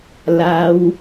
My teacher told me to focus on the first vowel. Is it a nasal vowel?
no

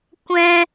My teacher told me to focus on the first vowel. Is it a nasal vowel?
yes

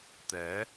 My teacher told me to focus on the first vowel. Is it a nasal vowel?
no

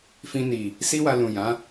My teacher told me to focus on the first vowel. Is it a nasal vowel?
yes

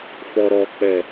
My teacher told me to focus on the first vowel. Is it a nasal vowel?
no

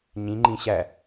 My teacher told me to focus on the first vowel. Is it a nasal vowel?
yes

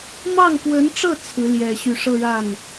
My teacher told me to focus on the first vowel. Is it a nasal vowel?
no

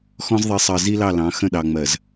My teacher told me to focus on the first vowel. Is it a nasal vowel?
yes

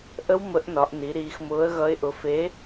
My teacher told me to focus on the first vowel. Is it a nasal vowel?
no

